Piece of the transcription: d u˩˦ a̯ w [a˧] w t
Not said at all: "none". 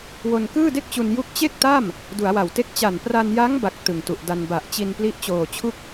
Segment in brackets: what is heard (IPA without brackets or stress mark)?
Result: a˨˩